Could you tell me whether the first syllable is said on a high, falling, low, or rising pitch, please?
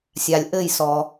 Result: low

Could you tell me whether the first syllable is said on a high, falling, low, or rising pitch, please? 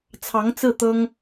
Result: rising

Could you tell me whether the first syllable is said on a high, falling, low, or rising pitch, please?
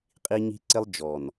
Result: high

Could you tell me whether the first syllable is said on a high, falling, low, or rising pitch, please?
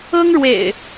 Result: high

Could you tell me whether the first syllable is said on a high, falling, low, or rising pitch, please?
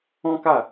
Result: high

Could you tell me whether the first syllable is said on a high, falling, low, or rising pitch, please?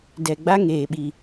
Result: low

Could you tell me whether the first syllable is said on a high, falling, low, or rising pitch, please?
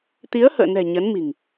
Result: rising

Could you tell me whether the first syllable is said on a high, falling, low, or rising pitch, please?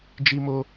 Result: high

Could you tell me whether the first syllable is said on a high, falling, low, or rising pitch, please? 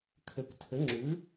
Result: low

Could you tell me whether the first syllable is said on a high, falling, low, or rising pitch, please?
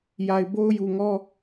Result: low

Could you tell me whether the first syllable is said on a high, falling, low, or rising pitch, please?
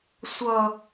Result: low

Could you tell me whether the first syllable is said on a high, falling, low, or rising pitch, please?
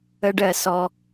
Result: high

